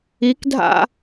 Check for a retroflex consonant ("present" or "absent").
absent